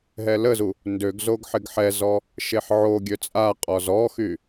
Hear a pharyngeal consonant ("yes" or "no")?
yes